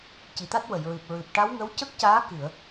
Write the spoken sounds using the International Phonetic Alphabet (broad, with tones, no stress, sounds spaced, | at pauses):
c i˨˩ t̪ a˦˥ t̚ w ə˨˩˨ j ɹ ɨ˨˩ p̚ ɹ ɨ˨˩ p̚ ʈ a˧˥ w ŋ ə˧˥ w c ə˦˥ k̚ c aː˧˥ k ɨ˨˩˨ ə̯